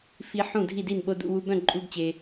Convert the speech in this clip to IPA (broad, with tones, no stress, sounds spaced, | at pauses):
f i˦˥ ħ ũ˥˩ dʱ i˥˩ d i˥˩ n ɓ o˧˥˧ d ṵ˥˧ w u˧˥˧ b œ̃˥˩ ǃʼ u˧˥˧ ɡ t͡ɕ e˨